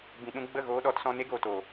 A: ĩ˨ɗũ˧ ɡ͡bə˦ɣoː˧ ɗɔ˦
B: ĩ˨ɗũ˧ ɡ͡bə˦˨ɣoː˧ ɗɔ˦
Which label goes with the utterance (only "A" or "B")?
B